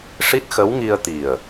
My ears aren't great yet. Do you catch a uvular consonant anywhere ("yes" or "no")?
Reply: no